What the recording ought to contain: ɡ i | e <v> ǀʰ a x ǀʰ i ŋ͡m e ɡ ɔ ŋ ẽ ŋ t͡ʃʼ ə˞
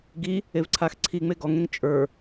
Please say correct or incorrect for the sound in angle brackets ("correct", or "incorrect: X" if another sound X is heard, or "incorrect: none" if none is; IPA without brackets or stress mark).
correct